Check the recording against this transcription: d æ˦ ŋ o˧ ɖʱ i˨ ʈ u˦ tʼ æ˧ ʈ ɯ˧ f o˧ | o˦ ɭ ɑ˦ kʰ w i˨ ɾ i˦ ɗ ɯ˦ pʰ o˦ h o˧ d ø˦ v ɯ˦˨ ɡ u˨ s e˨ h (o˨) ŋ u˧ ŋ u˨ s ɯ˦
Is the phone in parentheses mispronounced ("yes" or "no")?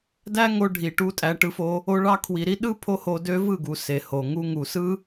no